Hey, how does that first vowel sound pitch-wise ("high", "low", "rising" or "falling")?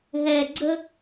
low